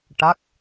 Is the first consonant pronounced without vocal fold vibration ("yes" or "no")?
yes